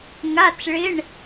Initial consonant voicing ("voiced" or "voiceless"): voiced